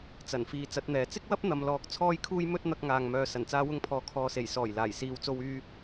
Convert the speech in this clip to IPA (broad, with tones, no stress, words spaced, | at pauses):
t͡sɐ˨˩nfiː˨ t͡sɐ˨˥t̚n̪ɛː˨ t͡sɪ˥k̚wɐ˥p̚ n̪ɐ˨mlɔː˨˥k̚ t͡sʰɔː˧jkʰuː˧j mɵ˥t̚ n̪ɐ˧k̚ŋaː˨ŋmœː˨ sɐ˨˩nt͡saː˧wʊ˧ŋpʰɔː˨ kʰɔː˨se˨˩j sɔː˨˩jlaː˨˩jsiː˨w t͡so˧wyː˧